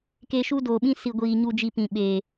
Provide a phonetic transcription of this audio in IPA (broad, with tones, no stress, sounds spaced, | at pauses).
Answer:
k e˧ ʃ u˦ d oː˨ ɓ ĩ˦ s i˨ ɡʷ iː˨ ɲ u˨ d͡ʒ i˨ p ĩ˨ ɓ e˨